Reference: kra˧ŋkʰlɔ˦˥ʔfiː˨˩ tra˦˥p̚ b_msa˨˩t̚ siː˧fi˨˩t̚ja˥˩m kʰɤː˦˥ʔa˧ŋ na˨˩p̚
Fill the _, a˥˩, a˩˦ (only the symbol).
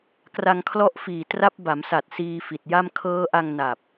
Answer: a˩˦